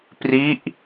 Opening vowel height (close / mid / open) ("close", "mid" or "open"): close